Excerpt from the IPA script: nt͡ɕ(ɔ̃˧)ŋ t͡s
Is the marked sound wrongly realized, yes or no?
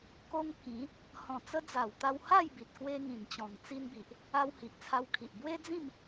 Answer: yes